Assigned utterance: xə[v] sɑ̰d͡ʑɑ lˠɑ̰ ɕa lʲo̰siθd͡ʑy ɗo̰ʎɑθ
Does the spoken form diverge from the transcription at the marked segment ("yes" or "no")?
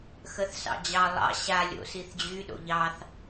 yes